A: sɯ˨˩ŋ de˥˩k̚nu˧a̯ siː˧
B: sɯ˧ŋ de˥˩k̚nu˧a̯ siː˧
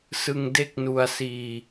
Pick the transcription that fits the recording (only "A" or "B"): B